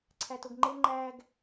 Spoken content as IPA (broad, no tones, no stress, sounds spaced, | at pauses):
ǀʰ æ t o ɡ ŋ͡ǃ e ŋ͡ǃ æ ɡ